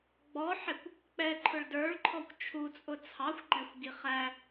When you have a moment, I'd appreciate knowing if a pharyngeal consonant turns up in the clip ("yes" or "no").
yes